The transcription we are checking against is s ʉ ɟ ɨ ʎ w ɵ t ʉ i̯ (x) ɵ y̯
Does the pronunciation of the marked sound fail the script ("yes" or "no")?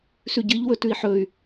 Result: yes